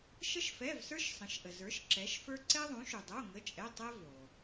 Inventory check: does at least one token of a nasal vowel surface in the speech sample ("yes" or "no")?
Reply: yes